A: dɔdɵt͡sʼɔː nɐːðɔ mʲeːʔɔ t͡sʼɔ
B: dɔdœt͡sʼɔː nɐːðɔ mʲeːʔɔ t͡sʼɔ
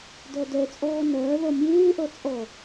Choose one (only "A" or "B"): B